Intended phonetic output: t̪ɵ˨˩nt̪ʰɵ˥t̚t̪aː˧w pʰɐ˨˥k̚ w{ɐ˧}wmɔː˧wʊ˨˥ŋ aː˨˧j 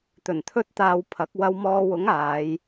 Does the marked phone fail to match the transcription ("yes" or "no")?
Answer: no